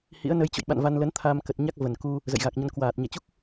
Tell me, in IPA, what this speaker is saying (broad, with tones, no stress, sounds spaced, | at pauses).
h ḭ˧˥ ə̯ n ə˨˦ j t͡ɕ o̰˧˨ j ɓ a̰˧˨ n v a˧ n l ə˨˦ n t̪ʰ aː˧ m k ə˨˩ t̚ ɲ a˦˥ k̚ v ə˨˩ n k u˧ | z ə̰˧˨ j ɣ a˨˩ k̚ ɲ ə˧ n k w aː˨˩ t̚ ɲ ɛ˧˩ t͡ɕ u˦˥ k̚